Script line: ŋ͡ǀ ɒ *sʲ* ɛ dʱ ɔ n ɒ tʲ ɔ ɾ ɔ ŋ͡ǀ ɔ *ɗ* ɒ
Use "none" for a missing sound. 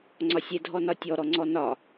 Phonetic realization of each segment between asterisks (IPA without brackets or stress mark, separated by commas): sʲ, n